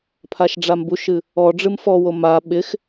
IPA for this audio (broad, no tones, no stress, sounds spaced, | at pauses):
pʰ a ʃ ɖ͡ʐ a m b u ʃ ɨ | ɔ ɖ͡ʐ ɨ m f ɔ w o m a ɓ ɪ x